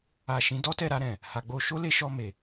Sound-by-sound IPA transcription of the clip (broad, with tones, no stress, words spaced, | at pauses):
a˨ ʃĩ˨˦dɔ˦tɛ˦˨ ɾa˧ɾɛ̃˨ | ha˨ɡ͡bo˧ ʃo˦le˧ʃɔ˧ me˨